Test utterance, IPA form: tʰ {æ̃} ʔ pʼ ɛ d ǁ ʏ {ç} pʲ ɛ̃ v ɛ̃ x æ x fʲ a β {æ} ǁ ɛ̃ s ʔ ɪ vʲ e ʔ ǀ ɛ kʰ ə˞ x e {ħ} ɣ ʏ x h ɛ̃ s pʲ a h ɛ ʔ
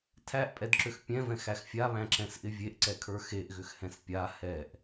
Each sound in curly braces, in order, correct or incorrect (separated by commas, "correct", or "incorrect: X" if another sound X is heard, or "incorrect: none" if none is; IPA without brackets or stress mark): incorrect: æ, incorrect: x, incorrect: æ̃, incorrect: ʔ